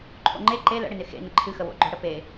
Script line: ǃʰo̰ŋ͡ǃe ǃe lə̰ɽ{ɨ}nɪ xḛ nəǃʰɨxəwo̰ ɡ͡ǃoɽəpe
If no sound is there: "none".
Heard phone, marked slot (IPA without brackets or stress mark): ɪ